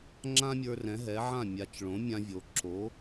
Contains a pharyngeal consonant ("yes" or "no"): yes